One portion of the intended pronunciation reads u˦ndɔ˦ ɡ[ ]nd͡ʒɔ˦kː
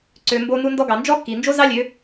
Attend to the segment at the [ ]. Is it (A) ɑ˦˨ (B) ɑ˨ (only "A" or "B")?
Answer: B